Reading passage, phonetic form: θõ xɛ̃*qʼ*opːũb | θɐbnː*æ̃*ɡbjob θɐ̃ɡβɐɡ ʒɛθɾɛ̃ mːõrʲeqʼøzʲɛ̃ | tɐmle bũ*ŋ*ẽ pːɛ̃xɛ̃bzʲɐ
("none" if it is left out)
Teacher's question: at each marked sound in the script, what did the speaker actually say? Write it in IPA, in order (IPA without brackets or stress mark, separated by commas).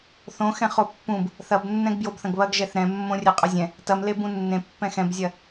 χ, ɛ̃, nː